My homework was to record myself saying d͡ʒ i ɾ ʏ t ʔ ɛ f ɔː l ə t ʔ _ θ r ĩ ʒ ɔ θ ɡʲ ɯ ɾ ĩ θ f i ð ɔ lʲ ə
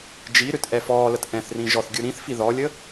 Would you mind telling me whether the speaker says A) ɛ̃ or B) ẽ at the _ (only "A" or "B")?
A